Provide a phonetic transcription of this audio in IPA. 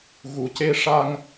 ɣ u˨˩˨ c e˧ ʂ a˧ ŋ

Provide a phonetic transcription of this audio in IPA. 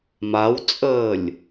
m a w t͡sʼ əː lʲ

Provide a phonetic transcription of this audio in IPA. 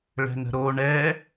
ɭ ɛ̤ n ə̤ ɾ o ɳ ɛ

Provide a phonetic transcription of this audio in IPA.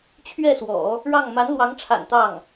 t͡ɕʰ ɥ ɛ˥˩ s w ɔ̰˨˩˦ | ɻ ɑ˥˩ ŋ m a˧˥ n l w ɑ˧˥ ŋ ʈ͡ʂʰ a̰˨˩ n t̪ ɑ˥˩ ŋ

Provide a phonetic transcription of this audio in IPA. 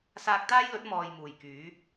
s aː˧ k̚ t̪ aː˥ j l ɵ˨˥ t̚ m ɔː˧ j m uː˨˩ j k yː˨˥

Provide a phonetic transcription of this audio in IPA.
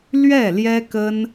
l ɥ ɛ˥˩ l j ɛ˥ k ə˥ n

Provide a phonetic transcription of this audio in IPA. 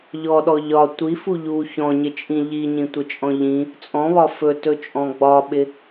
ʎ ɔ ɗ ɔ ʎ ɒ tʷ i f u ʎ u ç ɔ̃ ɲ ɪ t͡ʃʼ ĩ ʎ i ɲ ĩ tʷ ɪ t͡ʃʼ ɔ̃ ʎ ĩ | t͡sʼ ɔ̃ β ɒ f ɵ t ɵ t͡ʃʼ ɔ̃ ɡ͡b ɒ ɓ ɪ

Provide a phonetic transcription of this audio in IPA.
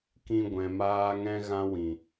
k ĩ˦ ɡʷ ɛ̃˧ m aː˦ ŋ ɛ̃˦ ɣ ã˦ w ĩ˨

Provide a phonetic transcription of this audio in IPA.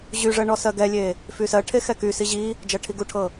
ʑ y ʐ ɜ ɳ ɔ s ɜ ɡ ɛ lʲ e | f y s ɜ ʈʰ e x ɛ k y s i ʑ i | d͡ʒ ɜ ʈʰ i ɡ u ʈʰ ɤ

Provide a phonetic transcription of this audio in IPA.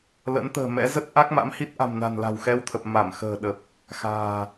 l ə̰˧˥ n t̪ ə̤ː˨˩ m ɛ̰˧˥ z ə˦˥ t̚ ʔ a˦˥ k̚ m a̰˧˥ m h i˦˥ t̚ ʔ a̤˨˩ m n a̤˨˩ n l a̤˨˩ w x ɛ˧ w t̪ʰ ə˨˩ p̚ m a˧˩ m x ə̤ː˨˩ ɗ ə˨˩ p̚ | x a̤ː˨˩

